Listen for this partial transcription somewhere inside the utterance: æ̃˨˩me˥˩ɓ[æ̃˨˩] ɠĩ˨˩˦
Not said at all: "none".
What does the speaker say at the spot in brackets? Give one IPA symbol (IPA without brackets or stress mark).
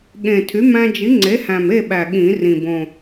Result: æ˨˩